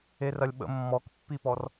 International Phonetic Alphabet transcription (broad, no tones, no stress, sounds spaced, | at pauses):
e r ɐ lʲ ɓ ə̰ mː ɔ k pː i p ɔ r